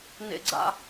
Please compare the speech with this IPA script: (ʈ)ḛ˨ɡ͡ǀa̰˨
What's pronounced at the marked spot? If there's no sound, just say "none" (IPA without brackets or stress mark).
n